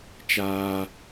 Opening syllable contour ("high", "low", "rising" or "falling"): high